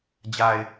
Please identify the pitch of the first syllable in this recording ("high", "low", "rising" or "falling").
low